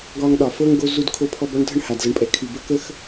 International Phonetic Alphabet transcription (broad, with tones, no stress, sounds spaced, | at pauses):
ɡ ɒː˧ ŋ ɗ ɒ˨ f ɤ˦ ŋ ɡ o˦ z u˧ d kʰ o˧ pʰ ɔ˧ b ɒ˦ ɳ dʱ ə˦ ɳ h a˨ d z ɤ˨ ɳ pʼ ɛ˨ kʰ y˨ b ə˦ k ə˦ x